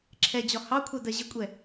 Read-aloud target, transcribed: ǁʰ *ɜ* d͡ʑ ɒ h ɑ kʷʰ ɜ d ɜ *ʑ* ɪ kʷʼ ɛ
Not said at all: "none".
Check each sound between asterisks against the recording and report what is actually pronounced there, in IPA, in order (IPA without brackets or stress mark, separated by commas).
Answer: ɛ, ʑ